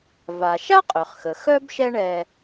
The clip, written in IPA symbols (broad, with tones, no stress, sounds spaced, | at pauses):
v a˩ ʃ a˥ qʼ ø˩ χ x ə˩ x œ˥ b ʃ ɛ˥ ɳ ɛ˧